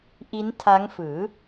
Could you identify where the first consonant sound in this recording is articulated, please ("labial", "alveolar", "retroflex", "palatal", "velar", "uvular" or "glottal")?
glottal